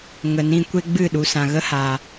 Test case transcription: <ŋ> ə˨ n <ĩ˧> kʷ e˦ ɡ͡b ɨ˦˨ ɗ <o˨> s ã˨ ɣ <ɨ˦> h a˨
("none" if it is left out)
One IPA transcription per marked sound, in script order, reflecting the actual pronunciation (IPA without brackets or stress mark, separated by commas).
ŋ, ĩ˧, u˨, ə˦